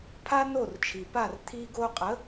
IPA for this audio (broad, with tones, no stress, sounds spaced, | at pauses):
pʰ a˥ n o˥˩ r t͡ʃʰ i˩ p a˥˩ r t̪ʰ i˧ ɡ o˧ qʼ ə˩˥